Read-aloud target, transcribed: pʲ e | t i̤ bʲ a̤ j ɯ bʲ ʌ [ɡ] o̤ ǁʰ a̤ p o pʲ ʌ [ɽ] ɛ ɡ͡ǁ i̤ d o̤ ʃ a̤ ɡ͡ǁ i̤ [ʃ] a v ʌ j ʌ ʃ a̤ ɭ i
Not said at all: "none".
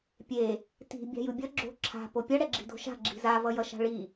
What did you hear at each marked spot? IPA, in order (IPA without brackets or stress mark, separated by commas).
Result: ɡ͡ǁ, ɽ, z